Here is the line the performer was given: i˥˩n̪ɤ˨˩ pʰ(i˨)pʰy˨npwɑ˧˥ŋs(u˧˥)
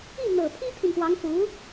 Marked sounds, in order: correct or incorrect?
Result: incorrect: i˥, correct

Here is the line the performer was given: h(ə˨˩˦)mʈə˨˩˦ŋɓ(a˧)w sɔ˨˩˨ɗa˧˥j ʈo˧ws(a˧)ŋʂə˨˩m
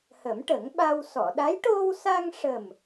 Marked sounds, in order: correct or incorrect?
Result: correct, correct, correct

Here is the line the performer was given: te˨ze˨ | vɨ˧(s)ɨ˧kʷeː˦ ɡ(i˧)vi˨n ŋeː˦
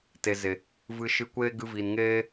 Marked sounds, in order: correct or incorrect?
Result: incorrect: ʃ, incorrect: ɨ˧

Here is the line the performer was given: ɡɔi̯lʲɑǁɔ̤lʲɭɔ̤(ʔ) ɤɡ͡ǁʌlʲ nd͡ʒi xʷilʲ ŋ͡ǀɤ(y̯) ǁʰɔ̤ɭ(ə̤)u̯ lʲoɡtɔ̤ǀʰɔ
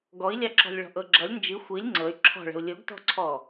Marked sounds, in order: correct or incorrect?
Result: correct, correct, correct

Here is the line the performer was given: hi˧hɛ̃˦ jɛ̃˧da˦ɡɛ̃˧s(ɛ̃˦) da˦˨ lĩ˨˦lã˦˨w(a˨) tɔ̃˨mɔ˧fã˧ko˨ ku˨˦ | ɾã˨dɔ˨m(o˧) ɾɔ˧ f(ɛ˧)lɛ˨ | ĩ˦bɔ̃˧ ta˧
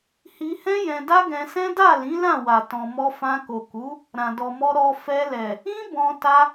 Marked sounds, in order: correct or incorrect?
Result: correct, correct, incorrect: ɔ˧, correct

